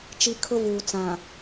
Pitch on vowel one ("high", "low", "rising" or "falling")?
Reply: low